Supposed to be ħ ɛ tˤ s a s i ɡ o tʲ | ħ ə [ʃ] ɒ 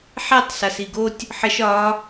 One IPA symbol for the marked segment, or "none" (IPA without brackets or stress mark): ʃ